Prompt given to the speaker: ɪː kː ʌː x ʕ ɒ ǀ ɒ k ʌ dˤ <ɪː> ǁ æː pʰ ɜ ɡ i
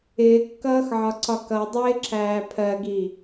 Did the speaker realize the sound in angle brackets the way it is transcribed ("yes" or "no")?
yes